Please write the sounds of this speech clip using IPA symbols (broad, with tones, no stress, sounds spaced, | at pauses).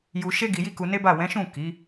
j u˧ ʃ e˦ ɡ i˧ j i˦ k u˧ n e˦ b a˦˨ w ɛ̃˨˦ ʃ ũ˦˨ k i˨˦